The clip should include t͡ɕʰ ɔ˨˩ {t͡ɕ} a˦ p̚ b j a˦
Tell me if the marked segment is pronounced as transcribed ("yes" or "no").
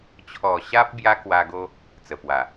no